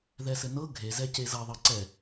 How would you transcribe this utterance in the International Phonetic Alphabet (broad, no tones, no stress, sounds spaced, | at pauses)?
ð ɛ s ɘ n ɤ ɡʱ e z ɛ c e z ɤ ðˤ ɤ ǀ ɛ